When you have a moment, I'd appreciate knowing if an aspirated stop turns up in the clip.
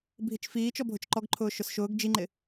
yes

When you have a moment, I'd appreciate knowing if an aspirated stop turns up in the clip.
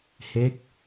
no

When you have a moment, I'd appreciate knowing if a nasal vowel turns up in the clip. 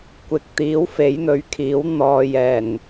no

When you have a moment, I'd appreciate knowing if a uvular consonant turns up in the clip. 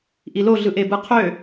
yes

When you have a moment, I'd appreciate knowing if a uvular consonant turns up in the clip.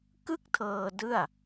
no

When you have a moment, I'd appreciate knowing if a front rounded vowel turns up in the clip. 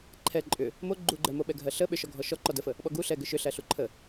yes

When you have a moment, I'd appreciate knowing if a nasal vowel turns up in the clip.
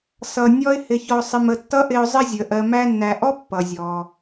no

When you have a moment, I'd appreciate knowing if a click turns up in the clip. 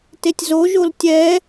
no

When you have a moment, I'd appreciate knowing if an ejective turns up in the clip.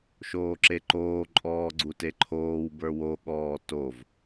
yes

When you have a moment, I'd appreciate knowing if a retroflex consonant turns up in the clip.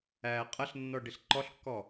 yes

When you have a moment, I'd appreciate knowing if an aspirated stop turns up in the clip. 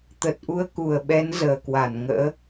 no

